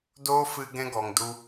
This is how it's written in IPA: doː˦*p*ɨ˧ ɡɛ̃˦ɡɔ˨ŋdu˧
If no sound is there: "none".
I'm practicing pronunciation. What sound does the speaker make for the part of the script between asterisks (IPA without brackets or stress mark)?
f